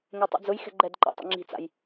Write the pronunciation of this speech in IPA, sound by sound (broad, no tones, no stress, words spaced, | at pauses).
ŋɛtˤḭd͡zʊj xɛ̤ɡ͡ǃɛdǃa̰ tˤḭŋ͡ǁi̤t͡sa̰j